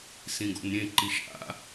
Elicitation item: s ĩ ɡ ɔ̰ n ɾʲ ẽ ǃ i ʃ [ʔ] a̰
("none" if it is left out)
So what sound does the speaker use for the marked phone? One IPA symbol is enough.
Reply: ʔ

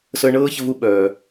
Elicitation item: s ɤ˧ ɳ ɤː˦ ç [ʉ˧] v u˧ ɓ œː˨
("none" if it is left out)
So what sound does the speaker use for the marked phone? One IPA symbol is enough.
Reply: ə˧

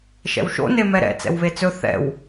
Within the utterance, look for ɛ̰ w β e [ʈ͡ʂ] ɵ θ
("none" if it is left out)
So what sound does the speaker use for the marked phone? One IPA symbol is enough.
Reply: t͡s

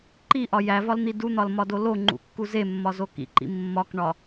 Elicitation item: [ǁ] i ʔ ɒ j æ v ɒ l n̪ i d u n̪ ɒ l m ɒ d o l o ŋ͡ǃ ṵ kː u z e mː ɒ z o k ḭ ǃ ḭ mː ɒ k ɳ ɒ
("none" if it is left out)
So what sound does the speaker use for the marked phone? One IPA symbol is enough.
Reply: ǃ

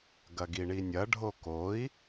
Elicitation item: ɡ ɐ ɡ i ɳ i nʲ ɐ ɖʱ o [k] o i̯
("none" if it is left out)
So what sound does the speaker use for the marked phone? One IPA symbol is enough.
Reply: k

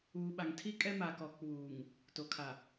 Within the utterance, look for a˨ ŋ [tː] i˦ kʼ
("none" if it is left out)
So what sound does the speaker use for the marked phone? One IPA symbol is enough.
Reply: tʰ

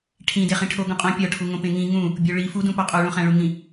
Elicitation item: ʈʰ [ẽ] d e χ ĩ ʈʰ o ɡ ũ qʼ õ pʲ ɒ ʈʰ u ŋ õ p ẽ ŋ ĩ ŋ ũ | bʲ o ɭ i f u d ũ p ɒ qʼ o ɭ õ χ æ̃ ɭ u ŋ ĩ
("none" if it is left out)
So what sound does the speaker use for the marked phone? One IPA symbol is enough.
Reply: ĩ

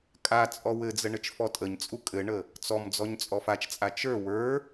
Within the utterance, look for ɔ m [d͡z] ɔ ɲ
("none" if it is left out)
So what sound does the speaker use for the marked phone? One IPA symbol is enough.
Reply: d͡z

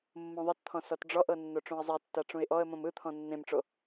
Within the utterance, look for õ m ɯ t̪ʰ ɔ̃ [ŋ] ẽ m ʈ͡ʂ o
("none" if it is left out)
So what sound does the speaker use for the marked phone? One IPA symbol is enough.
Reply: nː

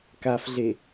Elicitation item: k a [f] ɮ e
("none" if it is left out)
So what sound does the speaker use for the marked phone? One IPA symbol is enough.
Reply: f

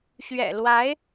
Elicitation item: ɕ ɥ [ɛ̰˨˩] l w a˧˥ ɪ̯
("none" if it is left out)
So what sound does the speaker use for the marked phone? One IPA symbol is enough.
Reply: ɛ̰˨˩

